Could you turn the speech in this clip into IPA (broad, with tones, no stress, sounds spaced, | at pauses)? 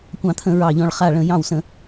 kʷ ɑ̃˧˩˧ t̪ʰ ə̃˧˩˧ ɹ ɑ˧˩ ʎ ɔ̃˧˩ ɭ χ a˧˩ ɭ ə̃˧˩˧ j ɑ̃˧˩ w s ə̃˧˩˧